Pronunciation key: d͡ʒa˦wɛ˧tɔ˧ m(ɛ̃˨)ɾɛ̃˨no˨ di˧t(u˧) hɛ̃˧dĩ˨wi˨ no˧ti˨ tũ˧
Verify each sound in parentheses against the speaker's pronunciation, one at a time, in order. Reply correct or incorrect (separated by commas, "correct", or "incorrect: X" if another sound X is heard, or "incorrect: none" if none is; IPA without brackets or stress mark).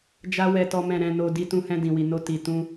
correct, incorrect: ũ˧